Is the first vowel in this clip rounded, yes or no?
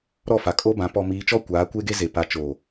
yes